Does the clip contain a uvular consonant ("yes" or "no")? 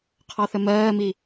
yes